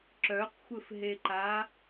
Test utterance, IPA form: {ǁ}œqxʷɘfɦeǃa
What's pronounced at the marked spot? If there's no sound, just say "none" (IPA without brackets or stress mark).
ǁ